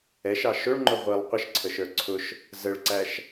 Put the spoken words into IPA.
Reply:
ɛ ʃ ɑ ʃ ʊ ɭ ŋ͡ǃ ʊ ʁʷ i lˠ qʷ ə ʃ ǀʰ ə ʃ ə˞ ǀʰ ʊ ʃ | z ə ɭ ǀ æ ʃ

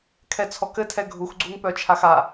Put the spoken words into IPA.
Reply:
kʰ ɛ t͡sʰ ɔ k ɘ tʰ ɛ ɡʱ u x ɡ͡ǀ u ŋ p œ t͡ʃʰ a x a

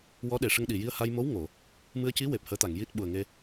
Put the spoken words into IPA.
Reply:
w ɔ˧˥ ɗ e˨˩ ʂ ə˧ ŋ ɗ i˨˩ j i˧ ə̯ h a˧ j m o˧˥ w ŋ o˨˩˨ | m ɨ˧ ə̯ c i˧˥ w e˨˩ p̚ h əː˧˥ t̪ a˨˩˨ ŋ j i˦˥ t̚ ɓ u˨˩ ə̯ ŋ e˧

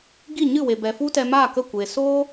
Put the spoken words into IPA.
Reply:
ɡ i˦˨ ɲ ɨ˦˨ w e˨ b ɛ˨ f u˦ t ɛ˧ m aː˦˨ k ə˦˨ kʷ e˨ s oː˦

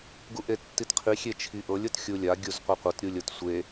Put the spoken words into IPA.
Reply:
ɡ u ʔ e tː i t qʰ i xʲ e t͡ʃʰ i ʔ ɤ lʲ ɤ t xʲ u lʲ a ɡʲ u z qʷ e qʷ ɤ t ɾʲ u lʲ ɤ t sʷ e

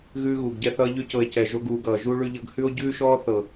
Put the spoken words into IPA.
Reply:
ɣ ʉː˦ ɣ uː˨ ɡ ɟ ɛ˦ θ ʌː˦ ʎ ʉ˦ c ɤ˧ e̯ c ɛ˨ ʒ o˧ ɡ uː˨ ɡ ʌː˨ ʒ u˦ ɭ ʉ˧ ʎ ɤ˧ ɡ h ʉ˦ o̯ ɟ ʉː˦ ʃ ɔː˦ θ ɤ˨

